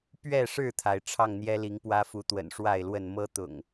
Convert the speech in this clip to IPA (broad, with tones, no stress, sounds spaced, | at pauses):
p ɥ ɛ˥˨ ʂ ɻ̩˥˨ t̪ʰ a˩ ɪ̯ ʈ͡ʂʰ ɑ˥˨ ŋ n̪ j ɛ˦ l i˨˦ ŋ p w ä˦ f u˨˦ t̪ w ə̰˨˩ n ʂ w a˥˨ ɪ̯ l w ə˥˨ n m ɤ˦ t̪ ʊ̰˨˩ ŋ